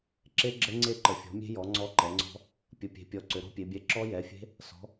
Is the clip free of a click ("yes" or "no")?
no